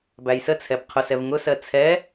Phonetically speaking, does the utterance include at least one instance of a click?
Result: no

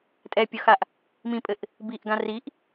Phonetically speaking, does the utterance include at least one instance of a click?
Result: no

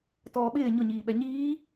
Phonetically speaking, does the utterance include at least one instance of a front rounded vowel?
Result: no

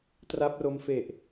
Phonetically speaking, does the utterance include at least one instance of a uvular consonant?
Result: no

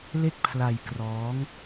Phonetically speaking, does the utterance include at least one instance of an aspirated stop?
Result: yes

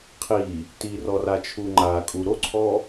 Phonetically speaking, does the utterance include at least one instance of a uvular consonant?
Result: yes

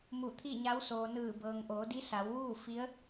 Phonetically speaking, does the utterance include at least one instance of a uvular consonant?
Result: no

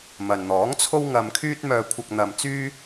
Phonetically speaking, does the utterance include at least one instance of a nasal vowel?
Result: no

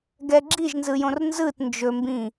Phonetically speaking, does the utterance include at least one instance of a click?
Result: yes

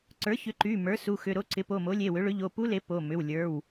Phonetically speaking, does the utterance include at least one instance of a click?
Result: yes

